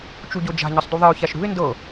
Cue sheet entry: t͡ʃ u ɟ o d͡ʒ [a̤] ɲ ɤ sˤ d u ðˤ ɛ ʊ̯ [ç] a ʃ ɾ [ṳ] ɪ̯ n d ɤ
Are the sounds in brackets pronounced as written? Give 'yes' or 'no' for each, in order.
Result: yes, yes, yes

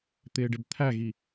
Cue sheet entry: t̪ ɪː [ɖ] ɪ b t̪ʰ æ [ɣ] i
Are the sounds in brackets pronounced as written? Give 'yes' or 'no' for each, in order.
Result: yes, yes

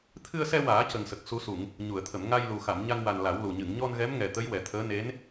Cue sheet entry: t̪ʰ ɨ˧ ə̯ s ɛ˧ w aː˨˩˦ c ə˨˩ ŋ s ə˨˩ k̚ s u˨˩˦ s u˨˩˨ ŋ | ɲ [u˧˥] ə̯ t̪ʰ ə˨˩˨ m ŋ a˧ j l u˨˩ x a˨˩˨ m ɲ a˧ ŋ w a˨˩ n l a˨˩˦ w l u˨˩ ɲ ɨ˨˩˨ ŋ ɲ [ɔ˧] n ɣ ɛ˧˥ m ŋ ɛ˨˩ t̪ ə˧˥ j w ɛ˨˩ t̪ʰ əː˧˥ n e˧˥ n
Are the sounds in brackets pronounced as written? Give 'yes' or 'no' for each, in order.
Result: no, yes

